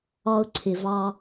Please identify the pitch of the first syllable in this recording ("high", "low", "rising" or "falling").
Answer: high